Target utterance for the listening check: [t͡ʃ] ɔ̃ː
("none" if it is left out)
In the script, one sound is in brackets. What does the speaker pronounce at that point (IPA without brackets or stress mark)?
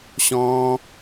ɕ